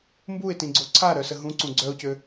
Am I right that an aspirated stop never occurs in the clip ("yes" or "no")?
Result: no